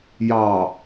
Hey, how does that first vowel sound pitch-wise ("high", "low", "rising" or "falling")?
low